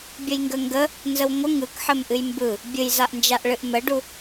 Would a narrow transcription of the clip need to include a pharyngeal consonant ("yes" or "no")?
yes